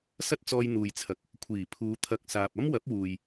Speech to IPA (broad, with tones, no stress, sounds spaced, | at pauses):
s ɐ˥ t̚ t͡s ɔː˧ j n̪ uː˨ j t͡sʰ ɐ˨ k̚ | kʷʰ iː˨˩ pʰ uː˨˧ t̪ʰ ɐ˨ k̚ s aː˨ p̚ ɐ˥ m w ɐ˨˥ p̚ w uː˨ j